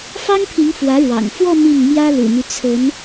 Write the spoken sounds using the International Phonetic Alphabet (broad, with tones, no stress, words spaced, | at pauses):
fɑ˥ŋpʰi˧˥ŋ fwä˧˥ɻwɑ̰˨˩ŋ fwɔ˥˧ mi˥˩ŋmjä˥ lṵ˨˩my˦ t͡sʰə˧˥n